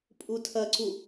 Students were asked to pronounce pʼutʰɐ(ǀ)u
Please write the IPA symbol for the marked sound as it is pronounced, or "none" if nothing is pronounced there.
ǀ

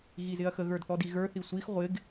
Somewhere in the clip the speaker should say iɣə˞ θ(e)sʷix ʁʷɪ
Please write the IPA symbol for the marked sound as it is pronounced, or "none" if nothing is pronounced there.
i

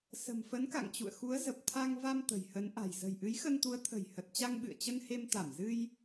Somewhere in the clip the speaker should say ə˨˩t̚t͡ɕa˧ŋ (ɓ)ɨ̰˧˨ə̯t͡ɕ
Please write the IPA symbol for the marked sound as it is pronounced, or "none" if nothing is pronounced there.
ɓ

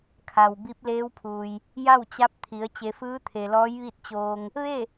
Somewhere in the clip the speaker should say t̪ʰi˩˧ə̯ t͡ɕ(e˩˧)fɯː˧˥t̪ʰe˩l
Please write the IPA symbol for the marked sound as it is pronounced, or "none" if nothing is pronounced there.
e˩˧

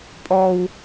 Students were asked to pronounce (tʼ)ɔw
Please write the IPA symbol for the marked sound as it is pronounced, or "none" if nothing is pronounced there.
pʼ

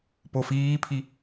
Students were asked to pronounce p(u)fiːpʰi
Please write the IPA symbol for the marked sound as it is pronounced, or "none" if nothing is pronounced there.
o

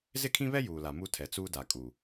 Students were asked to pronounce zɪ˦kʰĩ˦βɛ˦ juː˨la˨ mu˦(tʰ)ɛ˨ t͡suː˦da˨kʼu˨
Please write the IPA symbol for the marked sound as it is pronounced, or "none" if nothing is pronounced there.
tʰ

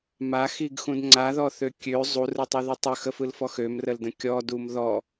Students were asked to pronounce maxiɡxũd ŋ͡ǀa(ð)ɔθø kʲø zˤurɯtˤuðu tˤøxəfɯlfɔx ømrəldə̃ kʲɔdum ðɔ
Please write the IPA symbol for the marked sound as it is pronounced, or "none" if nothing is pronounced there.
ð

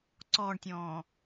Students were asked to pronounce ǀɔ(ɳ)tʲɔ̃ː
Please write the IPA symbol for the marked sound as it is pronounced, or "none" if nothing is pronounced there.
ɳ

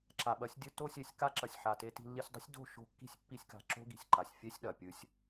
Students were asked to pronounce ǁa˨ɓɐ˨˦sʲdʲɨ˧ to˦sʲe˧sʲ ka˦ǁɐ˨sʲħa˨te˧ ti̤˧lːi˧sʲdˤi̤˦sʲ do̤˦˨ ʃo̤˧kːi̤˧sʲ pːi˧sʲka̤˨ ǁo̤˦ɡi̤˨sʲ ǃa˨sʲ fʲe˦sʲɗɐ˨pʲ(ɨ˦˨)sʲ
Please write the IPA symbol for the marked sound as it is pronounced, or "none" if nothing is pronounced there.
ɨ˧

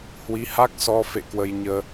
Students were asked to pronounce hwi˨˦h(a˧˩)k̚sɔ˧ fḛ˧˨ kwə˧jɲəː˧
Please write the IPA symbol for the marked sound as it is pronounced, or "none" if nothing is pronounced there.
a˦˥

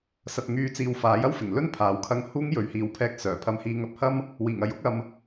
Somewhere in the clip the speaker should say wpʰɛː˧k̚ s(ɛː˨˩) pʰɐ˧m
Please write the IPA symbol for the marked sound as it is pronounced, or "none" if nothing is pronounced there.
œː˨˩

